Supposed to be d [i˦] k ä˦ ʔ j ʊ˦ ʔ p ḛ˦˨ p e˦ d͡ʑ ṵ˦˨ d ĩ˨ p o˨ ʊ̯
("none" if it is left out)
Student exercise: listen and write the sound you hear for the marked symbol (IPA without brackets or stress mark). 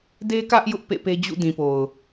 e˦